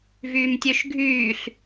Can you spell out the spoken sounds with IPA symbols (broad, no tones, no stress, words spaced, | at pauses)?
vyːmtʲøʃɡʱyːɬ